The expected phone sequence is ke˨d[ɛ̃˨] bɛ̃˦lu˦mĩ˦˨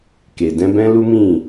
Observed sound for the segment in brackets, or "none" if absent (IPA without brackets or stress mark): ɛ̃˧